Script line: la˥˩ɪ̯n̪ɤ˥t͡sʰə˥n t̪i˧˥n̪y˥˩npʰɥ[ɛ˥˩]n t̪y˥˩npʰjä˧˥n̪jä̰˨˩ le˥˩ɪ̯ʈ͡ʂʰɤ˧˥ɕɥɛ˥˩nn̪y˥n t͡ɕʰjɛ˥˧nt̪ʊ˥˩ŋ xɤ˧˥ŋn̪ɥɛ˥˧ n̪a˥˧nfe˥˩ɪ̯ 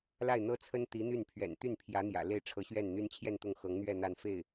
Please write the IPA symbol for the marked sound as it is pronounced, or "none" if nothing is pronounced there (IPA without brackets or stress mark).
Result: ɛ̰˨˩